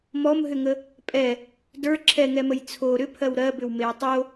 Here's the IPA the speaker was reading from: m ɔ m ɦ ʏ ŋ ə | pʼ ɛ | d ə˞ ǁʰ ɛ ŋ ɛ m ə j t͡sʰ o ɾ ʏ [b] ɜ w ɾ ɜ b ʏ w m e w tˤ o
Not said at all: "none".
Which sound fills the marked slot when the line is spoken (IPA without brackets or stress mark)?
pʰ